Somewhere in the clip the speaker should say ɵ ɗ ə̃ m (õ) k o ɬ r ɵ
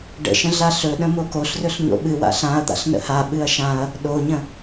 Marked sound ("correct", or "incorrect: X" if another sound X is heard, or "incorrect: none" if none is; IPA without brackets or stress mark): incorrect: o